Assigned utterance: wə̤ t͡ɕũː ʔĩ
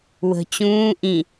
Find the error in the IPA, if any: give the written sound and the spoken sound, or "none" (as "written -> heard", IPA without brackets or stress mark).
none